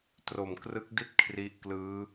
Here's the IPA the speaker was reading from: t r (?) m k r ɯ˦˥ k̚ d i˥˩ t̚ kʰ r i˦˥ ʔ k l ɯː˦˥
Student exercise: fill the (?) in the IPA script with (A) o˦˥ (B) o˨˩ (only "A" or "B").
B